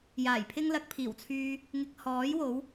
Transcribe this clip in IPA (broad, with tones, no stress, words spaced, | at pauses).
jaː˨˩jpʰɪ˥ŋlɐ˧k̚pʰiː˨˩w t͡sʰyː˧ | ŋɪ˧k̚ hɔː˨˥jwo˨˥w